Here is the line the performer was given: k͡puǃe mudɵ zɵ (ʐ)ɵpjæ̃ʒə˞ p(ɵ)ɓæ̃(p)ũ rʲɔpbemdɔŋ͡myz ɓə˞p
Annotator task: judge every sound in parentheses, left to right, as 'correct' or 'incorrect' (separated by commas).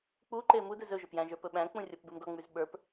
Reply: incorrect, correct, incorrect